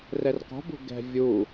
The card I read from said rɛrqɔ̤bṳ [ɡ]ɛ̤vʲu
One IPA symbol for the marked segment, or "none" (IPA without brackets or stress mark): ɡ